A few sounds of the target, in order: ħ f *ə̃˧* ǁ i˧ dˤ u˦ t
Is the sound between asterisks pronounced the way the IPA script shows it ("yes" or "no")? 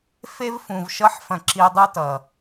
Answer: no